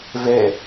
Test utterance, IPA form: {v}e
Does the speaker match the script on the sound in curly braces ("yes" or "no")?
yes